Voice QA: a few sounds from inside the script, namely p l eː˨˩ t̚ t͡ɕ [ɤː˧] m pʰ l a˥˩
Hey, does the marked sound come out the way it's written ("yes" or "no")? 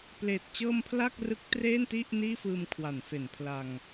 yes